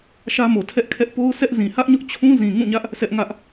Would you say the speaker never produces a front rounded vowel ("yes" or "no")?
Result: yes